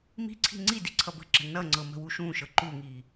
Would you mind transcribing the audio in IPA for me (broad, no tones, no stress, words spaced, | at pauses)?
mi̤ǀʰi̤ ŋ͡ǀidi ǀʰʌbə̤ǁə̤ nʌŋ͡ǀɤ mə̤wuʃũʃɤ ǃuŋi